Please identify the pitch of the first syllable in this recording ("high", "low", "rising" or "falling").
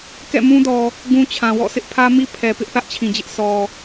falling